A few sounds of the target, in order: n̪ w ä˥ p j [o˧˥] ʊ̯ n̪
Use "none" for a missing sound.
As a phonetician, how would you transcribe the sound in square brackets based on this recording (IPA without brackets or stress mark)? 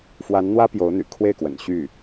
o˧˥